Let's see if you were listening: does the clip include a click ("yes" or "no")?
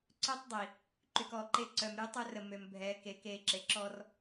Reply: yes